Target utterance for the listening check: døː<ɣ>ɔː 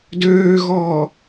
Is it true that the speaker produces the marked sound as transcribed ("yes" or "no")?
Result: yes